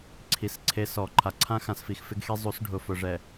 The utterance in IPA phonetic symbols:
ǀʰ i˨ s ǀʰ e˦ s ɔ˨ ǃʰ a˨ ǀʰ ã˦ x ã˨ s f i˨ x f ɪ˦ ɡ x e˦ zˤ u˨˦ s ɖʱ ʊ˨ f ʊ˨ ʐ ɛ˨

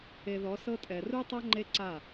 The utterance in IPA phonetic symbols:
e˨ ð ɔ˨˦ s ɤ˦ tʼ ɛ˨ r u˦ tˤ a˦ ŋ͡ǃ e˦ ǀ a˦˨

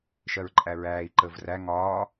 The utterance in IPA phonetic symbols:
ʃ ɜ ɹ ǃʼ æ ɹ æː i̯ ǃ əː v r æ ŋ ɒː

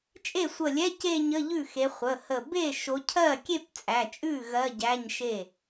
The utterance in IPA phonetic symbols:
t͡ʃʼ e˥˩ sʷ ə˧˩ lʲ ɛ˧˥˧ c e˥˧ ɲ ə˧˥˧ ʎ ʉ˥˩ x e˨˦ χʷ ə˩˧˩ h ə˧˩ b e˥˩ ʃ o˨˦ cʰ ɜ˥˩ kʲ e˥˧ p t͡sʼ æ˩˧˩ t͡ʃʼ ʉ˥˩ ɣ ɜ˧˥˧ ɟ æ˧˥˧ ɲ ʃ e˥˩

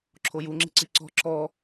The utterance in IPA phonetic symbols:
ǁʰ o j u ŋ͡ǁ i̤ ǀ i ǀ ɔ̤ ǁ ɔ

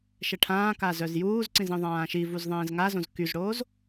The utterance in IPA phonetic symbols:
ʃ ɛ ʈʰ ãː k a z œ z j uː z ǀ ĩ z ĩ ðˤ ãː ʃ i v u z ðˤ ẽː z ŋ a z õ z k y z ɽ oː z

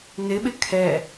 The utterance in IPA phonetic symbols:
n ɪ ɓ ɪ kʰ ɛ

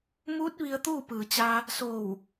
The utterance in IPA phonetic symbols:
m uː˧˥ t̚ ʋ i˧ ə̯ t̪ uː˥˨ p ɯː˩ t͡ɕ a˧ | s oː˧˩ w

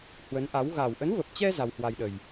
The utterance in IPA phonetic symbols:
h w ə˨˦ n ʔ a˨˦ w ɣ a˨˩ w ʔ ə˨˦ n v ə˨˩ p̚ t͡ɕ ɛ˧ z a˧ w h w a˧ j ɗ ə˨˩ j

